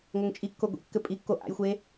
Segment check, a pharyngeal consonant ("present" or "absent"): absent